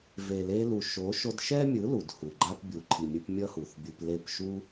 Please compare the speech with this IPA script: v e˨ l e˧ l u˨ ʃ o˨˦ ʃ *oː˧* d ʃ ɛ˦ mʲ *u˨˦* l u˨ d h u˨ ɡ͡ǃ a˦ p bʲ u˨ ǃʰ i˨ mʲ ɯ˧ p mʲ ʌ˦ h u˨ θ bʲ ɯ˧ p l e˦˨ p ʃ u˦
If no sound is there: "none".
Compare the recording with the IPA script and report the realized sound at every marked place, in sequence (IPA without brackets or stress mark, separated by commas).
o˧, ɯ˨˦